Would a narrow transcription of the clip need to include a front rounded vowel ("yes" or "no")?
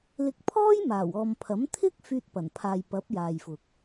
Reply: yes